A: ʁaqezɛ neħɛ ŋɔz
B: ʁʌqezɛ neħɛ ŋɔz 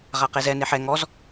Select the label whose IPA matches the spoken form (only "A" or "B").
A